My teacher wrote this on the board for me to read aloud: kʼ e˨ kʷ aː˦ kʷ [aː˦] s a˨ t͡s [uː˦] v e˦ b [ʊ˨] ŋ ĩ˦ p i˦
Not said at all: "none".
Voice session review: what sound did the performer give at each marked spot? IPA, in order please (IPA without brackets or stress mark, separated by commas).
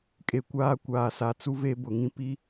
aː˨, u˦, ʊ˨